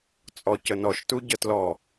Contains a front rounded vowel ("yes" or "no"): no